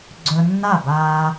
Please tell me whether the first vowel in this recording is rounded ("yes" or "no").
yes